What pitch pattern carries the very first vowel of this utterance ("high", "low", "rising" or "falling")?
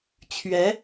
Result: rising